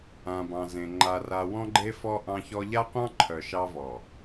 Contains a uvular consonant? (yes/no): yes